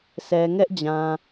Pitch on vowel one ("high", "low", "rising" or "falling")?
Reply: low